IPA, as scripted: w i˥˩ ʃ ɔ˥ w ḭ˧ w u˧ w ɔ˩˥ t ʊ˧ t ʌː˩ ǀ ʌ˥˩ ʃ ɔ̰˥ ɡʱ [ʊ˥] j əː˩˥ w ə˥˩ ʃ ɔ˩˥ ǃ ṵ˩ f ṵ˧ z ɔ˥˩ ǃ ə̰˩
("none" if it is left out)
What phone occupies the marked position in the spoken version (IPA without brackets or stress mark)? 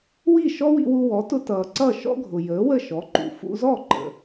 ʊ˩